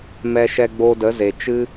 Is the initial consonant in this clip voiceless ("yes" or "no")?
no